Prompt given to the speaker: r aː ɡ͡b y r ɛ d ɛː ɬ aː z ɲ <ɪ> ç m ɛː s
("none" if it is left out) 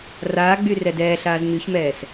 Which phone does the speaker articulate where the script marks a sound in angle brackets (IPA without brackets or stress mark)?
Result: y